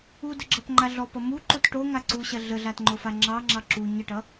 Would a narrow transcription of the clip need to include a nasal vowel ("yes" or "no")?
no